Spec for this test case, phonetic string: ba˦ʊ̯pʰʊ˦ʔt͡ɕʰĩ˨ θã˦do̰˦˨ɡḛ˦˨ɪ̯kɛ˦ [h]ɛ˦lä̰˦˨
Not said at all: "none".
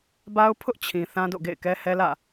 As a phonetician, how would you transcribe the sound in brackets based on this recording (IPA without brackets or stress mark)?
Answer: h